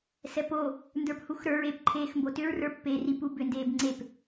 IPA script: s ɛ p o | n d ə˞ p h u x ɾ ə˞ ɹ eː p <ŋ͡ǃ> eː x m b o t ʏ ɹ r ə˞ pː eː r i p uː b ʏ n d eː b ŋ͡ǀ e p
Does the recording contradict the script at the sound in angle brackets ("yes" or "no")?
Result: yes